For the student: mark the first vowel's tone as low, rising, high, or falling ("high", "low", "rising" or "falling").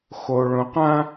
low